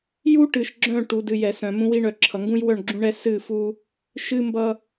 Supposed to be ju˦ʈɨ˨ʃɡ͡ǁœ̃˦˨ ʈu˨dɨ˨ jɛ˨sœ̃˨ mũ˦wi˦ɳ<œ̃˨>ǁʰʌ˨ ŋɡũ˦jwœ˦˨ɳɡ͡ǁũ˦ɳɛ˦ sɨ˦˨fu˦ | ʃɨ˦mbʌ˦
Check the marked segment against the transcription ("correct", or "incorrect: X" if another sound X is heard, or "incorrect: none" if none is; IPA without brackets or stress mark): incorrect: œ˨